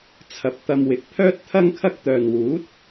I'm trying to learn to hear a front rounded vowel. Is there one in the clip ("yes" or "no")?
yes